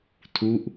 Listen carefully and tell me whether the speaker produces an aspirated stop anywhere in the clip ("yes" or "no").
yes